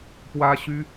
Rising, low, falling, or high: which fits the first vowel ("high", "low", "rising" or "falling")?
high